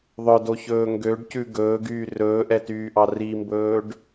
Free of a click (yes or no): yes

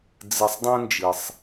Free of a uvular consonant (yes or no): yes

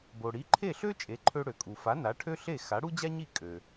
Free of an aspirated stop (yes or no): no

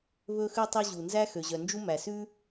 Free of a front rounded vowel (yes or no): no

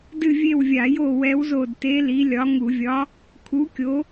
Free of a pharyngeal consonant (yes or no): yes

